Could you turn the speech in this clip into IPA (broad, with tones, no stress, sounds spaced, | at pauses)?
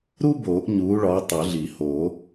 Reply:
ɾ u˥ b oː˨˩˦ ʔ ɲ uː˨˥ ɭ ɒ˨˥ tˤ o˨˩˦ ɮ i˨˩˦ h oː˨˩˦